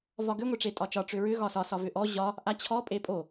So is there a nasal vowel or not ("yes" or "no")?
no